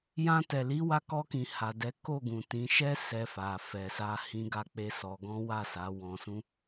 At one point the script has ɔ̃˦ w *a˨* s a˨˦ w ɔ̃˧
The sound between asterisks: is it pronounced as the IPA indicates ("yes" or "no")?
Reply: no